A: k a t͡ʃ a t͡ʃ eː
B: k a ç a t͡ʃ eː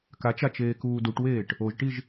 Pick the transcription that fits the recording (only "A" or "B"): A